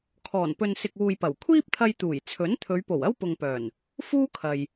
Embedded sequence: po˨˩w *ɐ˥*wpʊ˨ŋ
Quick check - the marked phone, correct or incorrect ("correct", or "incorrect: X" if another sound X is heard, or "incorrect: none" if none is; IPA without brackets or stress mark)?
correct